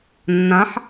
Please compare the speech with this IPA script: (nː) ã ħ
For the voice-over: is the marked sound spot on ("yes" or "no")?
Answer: yes